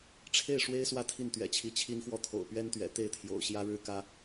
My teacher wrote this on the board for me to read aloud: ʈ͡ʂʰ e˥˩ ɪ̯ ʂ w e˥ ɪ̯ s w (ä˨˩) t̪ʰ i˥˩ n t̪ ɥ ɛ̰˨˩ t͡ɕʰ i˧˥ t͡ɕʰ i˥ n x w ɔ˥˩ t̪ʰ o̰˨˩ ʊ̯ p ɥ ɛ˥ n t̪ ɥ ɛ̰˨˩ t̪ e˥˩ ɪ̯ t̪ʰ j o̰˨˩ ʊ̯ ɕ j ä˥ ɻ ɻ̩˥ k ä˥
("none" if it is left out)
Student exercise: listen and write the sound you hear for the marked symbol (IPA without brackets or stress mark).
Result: ä˥˧